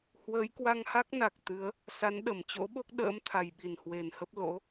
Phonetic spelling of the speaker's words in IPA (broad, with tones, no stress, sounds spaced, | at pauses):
h w əː˨˦ j k w a˧ ŋ h a˦˥ k̚ n a˨˩ k̚ t̪ ɨ˨˦ ə̯ | s a˨˦ n ɗ ə˧˩ m t͡ɕ o̰˧˥ ɓ o˦˥ k̚ ɗ ə̰ː˧˥ m t̪ʰ a˨˩ j ɓ i˨˩ n h w e˨˩ n h ə˦˥ p̚ l o̰˧˥